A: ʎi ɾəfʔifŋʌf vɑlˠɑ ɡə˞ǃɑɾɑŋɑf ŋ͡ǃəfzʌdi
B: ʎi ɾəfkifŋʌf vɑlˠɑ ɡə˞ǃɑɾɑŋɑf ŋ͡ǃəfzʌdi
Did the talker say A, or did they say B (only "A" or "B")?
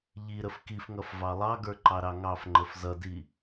B